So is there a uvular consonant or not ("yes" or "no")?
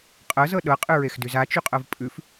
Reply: yes